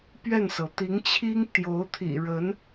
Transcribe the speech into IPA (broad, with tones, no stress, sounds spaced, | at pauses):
p ɥ ɛ˥˩ n s ɤ˩ t̪ i˧˥ ŋ t͡ɕʰ i˥ ŋ t̪ j o˧˥ ʊ̯ t̪ʰ ḭ˨˩ ɻ ə˧˥ n